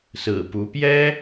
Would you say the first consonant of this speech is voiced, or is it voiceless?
voiceless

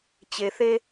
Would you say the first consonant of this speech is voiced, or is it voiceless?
voiceless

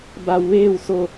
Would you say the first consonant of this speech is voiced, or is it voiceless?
voiced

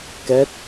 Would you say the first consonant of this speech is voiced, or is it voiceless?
voiceless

